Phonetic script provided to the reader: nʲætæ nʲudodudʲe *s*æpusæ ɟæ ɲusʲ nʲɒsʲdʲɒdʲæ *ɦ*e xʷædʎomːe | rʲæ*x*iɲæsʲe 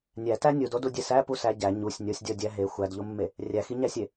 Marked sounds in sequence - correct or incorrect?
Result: correct, correct, correct

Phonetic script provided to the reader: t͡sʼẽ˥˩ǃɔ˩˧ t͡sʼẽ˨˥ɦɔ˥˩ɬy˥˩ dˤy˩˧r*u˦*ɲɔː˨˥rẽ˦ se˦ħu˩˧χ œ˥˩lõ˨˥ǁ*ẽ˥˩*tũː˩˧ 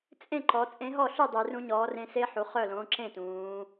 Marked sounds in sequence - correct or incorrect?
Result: incorrect: ũ˦, correct

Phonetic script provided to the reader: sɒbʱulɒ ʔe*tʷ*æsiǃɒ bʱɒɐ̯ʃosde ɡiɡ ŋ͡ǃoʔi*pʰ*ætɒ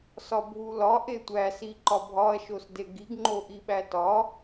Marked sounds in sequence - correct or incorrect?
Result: correct, incorrect: ɓ

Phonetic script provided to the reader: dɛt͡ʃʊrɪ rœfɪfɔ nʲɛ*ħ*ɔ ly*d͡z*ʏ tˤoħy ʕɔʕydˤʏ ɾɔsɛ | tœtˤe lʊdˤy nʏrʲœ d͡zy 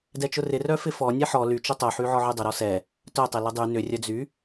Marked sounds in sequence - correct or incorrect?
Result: correct, incorrect: t͡ʃ

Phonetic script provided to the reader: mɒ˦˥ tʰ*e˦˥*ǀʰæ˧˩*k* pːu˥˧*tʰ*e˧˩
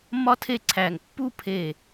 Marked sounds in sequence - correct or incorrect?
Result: incorrect: e˥˧, incorrect: ŋ, incorrect: pʰ

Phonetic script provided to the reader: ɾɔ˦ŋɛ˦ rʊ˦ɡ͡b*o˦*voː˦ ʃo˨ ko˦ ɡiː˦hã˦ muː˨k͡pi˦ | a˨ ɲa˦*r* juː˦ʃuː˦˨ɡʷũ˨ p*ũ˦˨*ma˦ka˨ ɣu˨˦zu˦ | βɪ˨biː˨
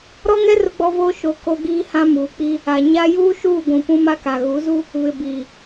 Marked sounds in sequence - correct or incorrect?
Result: incorrect: ɔ˦, incorrect: none, incorrect: ũ˦

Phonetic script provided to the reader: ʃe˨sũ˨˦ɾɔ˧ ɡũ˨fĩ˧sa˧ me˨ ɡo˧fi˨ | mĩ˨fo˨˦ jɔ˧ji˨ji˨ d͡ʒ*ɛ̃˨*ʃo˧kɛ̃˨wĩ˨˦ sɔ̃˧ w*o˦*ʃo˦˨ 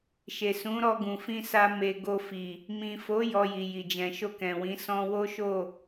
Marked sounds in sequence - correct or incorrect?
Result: correct, correct

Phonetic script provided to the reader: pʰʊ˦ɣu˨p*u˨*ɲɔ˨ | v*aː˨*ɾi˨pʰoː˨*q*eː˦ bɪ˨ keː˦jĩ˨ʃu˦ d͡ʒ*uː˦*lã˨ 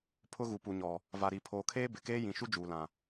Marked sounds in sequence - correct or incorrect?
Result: correct, incorrect: a˨, incorrect: kʰ, incorrect: uː˨

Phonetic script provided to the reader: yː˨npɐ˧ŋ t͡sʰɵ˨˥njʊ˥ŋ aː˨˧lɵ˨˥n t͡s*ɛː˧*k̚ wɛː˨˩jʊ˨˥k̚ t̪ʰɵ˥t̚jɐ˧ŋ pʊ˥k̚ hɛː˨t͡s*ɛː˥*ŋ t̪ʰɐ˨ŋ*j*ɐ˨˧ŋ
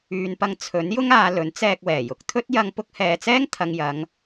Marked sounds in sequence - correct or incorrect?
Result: correct, correct, correct

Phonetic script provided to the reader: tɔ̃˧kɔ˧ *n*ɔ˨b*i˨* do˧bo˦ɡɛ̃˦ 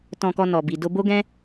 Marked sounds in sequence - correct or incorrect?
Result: correct, correct

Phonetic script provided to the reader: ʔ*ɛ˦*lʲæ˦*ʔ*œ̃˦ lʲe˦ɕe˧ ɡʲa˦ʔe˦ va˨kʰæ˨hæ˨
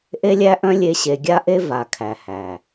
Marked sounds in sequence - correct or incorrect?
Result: incorrect: e˦, correct

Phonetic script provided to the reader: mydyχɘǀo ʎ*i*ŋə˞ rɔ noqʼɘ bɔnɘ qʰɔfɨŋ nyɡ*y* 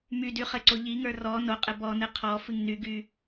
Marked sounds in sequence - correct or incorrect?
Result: correct, correct

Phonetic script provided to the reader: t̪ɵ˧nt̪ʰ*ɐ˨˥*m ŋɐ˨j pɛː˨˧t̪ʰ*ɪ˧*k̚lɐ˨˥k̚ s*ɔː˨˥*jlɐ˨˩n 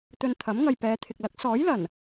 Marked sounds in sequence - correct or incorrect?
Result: correct, incorrect: ɪ˨, correct

